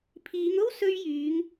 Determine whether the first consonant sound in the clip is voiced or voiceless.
voiceless